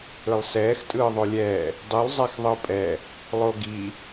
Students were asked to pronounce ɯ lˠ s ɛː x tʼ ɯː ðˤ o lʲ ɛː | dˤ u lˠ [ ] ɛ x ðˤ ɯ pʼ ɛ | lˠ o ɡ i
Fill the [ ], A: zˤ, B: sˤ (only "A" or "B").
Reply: A